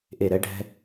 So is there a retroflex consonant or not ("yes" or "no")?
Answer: yes